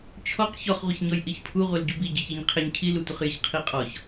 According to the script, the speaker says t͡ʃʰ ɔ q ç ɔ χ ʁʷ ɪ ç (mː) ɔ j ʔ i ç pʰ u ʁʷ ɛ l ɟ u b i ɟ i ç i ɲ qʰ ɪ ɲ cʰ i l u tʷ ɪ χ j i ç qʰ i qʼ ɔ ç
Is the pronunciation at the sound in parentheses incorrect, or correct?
incorrect